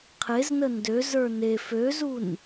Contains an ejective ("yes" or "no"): no